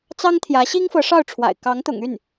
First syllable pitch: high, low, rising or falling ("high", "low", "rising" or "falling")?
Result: high